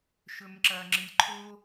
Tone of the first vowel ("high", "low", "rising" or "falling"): low